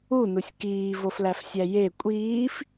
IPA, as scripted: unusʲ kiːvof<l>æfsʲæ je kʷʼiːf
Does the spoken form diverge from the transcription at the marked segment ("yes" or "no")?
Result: no